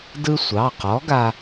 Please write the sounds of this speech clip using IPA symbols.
d ɯ˧ sʷ ɑ˩˧˩ q ɔ˨˥ ɡ a˧

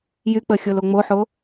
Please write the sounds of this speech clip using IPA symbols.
j y k͡p ə xʲ o l o ŋ͡m o ħ o

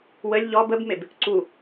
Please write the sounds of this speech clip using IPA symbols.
w ə lʲ ʎ ɔ b ə b m e b | ǀ u

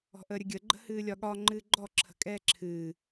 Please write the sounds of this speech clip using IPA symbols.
ɔ̤ ʔ əː ɾʲ ə ɡʲ ə ɡ͡ǃ ə̤ h ɨː lʲ ɒ ɠ ɒ ŋ͡ǃ ɨː ɡ͡ǃ ɔ ǁʰ ə̤ kʼ ɛː ǁʰ ɨː

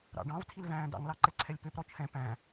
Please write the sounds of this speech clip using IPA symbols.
ɾ ɑ̰ ɖ ɑ̃ v tʰ i l v æ̃ː d ɑ̰ ŋ l ɑ ǃ ɛ ǀʰ ɛ lʲ p ø p ɾ ɔ t͡ʃʰ ɛ̃ p æ̃

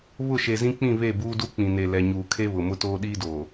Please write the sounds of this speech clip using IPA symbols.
β ʊ˦˨ ʃ e˨ z ĩ˦ k͡p ĩ˦˨ β e˦˨ b uː˦ d u˦ k͡p ĩ˨ n e˨ l ɛ˨ ɲ uː˨ kʰ e˦ β ʊ˨ m ʊ˦ t oː˦ ɗ iː˦ d oː˨

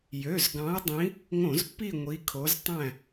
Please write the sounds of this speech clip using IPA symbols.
j ø˩˧˩ z ɡ ɑ̃˨˦ ɐ̯ dˤ ĩ˨˦ | ŋ õ˧˩˧ z pː i˦˨ ŋʷ i˨˦ kʰ o˨˦ z tˤ æ̃˦˨

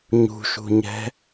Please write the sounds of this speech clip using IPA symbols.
ɲ ṳ ʃ ṳ ɲ ɛ̤

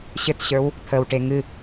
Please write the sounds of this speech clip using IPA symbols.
ɕ ɘ t ɕ ə˞ w | t̪ʰ ə w ʈ e ŋ ɨ

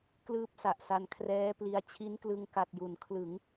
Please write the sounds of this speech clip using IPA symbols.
k l ɯː˥˩ p̚ s a˨˩ ʔ s a˧ n kʰ r ɛː˦˥ p l i˧ a̯ t͡ɕʰ i˦˥ n k l ɯ˧ ŋ k a˨˩ t̚ j u˩˦ n kʰ l ɯ˩˦ ŋ

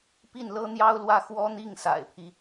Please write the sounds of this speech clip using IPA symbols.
p i˥˩ n l ɤ˥ n̪ j ɑ˥ ʊ̯ l w ä˥˩ x w ɔ˥ n̪ i˥˩ ŋ s a̰˨˩ ɪ̯ pʰ i˦

